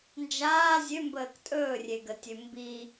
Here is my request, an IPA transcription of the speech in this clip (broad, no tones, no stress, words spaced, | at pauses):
nd͡ʒaː zʲømbəːk tʼɵːrʲeɡətʲø mbi